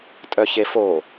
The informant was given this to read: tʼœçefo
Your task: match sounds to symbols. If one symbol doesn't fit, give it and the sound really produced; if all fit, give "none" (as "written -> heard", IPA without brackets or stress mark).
none